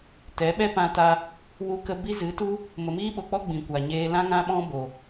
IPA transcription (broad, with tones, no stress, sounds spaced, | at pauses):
t ɛ˨˦ ɓ ɛ˦ p ã˧ t a˧ | w u˧ k ə˧ b i˦ z ɨ˨˦ t u˦ | m ə˨ m iː˦ ɓ o˨ k͡p ɔ˦ ɡ͡b ĩ˨ kʷ a˨ ɲ eː˧ l ã˦ ŋ ã˦ ɓ ɔ̃˦ b o˨